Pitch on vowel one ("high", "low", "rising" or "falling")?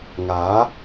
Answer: rising